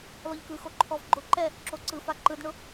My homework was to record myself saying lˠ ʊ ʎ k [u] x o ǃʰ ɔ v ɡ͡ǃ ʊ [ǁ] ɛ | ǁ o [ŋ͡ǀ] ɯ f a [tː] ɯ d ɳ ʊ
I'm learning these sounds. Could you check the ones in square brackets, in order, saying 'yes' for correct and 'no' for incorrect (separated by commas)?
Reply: no, no, no, no